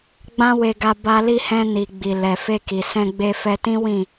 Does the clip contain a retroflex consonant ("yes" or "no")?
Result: no